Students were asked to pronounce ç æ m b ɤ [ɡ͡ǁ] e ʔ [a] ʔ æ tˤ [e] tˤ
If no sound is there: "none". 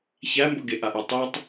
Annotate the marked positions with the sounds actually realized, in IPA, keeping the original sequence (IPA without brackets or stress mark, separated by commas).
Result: ɡ, a, e